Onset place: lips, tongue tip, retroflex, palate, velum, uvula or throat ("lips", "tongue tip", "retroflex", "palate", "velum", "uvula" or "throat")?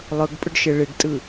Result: tongue tip